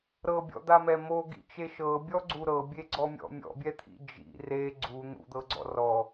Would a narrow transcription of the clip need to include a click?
yes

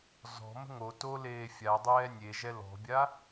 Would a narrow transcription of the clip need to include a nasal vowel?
no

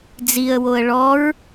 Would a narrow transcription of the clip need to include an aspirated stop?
no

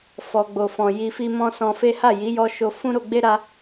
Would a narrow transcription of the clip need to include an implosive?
no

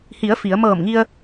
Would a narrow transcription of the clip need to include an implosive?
no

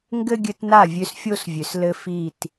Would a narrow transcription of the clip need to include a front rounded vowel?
yes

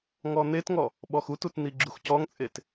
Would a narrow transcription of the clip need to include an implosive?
yes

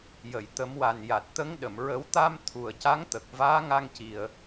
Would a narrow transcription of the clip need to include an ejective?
no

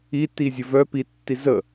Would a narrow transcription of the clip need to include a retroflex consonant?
no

